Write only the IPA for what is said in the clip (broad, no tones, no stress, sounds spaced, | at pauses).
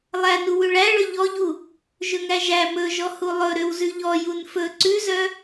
lˠ æ n u w ʉ ɭ æ ɭ ɵ ʎ ɔ ʎ u | ʒ ɵ ŋ æ ʒ æ m ɵ ʒ ɔ h u lˠ ɵ ɾ ø w z ʉ ʎ ɔ j u n f ɵ ǀ ʉ z œ